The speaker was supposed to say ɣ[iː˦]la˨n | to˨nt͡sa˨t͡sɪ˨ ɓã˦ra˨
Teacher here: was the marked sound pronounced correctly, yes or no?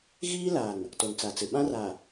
yes